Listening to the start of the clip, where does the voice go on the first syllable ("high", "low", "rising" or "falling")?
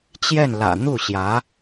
falling